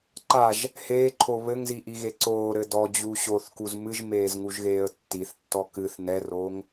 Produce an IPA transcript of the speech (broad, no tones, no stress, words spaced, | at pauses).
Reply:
ǃaʒ | heːǃʰo βɘŋziʔiɣe ǀoːɾɘ dɔd͡ʑu ɕoθkuz mɨʒmeːzŋuʒɣeːə̯ tːiθtːɔ kɨθ nɛroːŋ